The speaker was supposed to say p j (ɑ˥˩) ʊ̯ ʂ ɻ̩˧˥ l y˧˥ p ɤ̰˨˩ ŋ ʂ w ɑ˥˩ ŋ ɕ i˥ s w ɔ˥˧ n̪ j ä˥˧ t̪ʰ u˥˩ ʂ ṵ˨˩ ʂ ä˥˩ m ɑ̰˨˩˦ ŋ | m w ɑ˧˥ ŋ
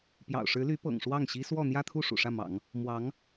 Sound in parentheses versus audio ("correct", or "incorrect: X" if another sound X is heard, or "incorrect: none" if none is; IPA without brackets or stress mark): incorrect: ɑ̰˨˩